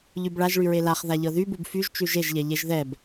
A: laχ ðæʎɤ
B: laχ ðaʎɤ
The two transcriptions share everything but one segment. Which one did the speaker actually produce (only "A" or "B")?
B